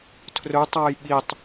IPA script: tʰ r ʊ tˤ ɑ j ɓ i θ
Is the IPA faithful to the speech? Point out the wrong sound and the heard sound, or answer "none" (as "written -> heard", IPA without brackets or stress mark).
θ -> tˤ